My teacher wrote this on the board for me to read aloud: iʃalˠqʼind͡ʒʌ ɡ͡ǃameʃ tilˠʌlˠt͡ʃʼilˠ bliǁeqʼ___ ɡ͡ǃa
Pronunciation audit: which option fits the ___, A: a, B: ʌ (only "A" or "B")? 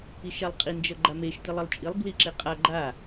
A